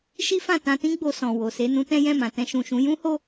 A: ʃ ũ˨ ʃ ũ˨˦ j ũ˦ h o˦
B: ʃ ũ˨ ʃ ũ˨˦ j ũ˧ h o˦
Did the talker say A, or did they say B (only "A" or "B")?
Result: A